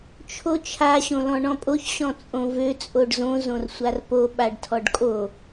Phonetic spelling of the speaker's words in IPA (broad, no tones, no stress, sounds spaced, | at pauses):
t͡ʃʰ o t͡ʃʰ a ɕ õ l ɔ̃ ɳ ɔ̃ pʼ o ç ɕ ɔ̃ t͡sʼ õ v ø t͡sʼ o ɖ z õ z õ r sʷ a r p o ɓ a ɖ tʰ ɔ ɖ kʼ o